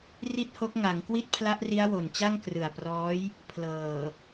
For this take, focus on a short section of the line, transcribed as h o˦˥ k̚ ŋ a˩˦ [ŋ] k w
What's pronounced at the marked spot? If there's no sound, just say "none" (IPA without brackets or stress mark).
ŋ